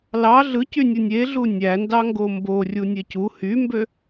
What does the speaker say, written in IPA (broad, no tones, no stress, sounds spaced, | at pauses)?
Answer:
l ɑ ɮ ɯ c y nʲ ɯ nʲ e ɮ u nʲ æ n d ɑ ŋ ɡ o m b o rʲ u nʲ e c u h y m b ø